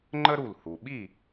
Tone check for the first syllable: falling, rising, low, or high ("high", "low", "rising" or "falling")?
high